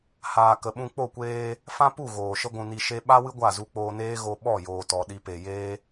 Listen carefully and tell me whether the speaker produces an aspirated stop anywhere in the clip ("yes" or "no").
no